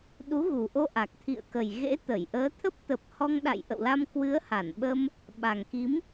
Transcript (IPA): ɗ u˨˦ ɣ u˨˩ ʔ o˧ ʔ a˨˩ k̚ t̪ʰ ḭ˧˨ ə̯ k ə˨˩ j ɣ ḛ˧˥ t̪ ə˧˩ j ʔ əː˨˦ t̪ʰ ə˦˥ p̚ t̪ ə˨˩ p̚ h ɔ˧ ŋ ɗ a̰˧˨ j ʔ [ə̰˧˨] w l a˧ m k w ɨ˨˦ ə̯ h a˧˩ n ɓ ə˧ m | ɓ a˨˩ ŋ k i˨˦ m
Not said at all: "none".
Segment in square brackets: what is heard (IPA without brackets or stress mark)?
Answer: ə̰˧˨